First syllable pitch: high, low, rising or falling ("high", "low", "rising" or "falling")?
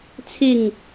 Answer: falling